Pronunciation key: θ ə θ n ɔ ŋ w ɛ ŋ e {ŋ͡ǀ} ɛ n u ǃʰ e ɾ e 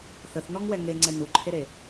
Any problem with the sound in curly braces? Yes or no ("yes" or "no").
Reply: no